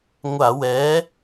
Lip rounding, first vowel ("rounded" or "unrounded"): unrounded